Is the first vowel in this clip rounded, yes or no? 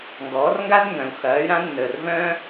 yes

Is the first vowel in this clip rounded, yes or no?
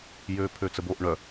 yes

